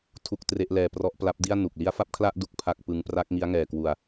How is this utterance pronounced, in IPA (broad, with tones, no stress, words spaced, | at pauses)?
tʰu˥˩k̚tre˥˩ʔlɛː˧ prɔ˦˥ʔpla˦˥p̚di˥˩a̯ nu˨˩k̚ li˦˥a̯fa˥˩p̚kʰla˥˩ʔ du˥˩k̚pʰa˥˩k̚pɯ˦˥ŋ pra˦˥k̚ŋi˦˥a̯ŋɛː˨˩kwu˨˩a̯